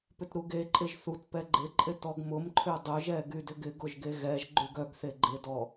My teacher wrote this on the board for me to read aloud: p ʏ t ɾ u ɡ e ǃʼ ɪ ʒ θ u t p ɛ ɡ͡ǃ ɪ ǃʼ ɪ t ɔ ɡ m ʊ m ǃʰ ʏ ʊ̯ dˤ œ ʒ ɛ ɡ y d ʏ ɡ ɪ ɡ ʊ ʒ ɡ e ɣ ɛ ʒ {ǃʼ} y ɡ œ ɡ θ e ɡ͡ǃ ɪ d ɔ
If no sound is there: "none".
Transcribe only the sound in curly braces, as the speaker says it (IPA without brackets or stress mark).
ɡ͡ǃ